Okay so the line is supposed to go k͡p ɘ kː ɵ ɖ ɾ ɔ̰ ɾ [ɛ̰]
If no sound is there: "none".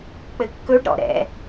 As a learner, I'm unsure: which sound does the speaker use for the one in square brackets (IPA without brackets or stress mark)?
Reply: ɛ̰